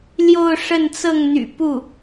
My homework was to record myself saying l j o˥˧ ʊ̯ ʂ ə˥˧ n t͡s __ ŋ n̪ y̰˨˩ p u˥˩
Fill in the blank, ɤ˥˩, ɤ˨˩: ɤ˥˩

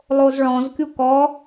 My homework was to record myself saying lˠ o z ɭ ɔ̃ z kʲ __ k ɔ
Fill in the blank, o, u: u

